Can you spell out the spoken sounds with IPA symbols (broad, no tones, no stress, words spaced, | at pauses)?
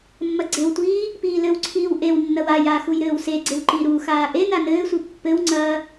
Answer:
mːɐɡ͡ǀewtʷiː | piːlɘwǀʰiːw ʔewnːɐw ajaː xujɾɘːwseɡ͡ǀew ǃiɾuxaː ʔe nanɘːsʷi pːɘwŋ͡ǀɐː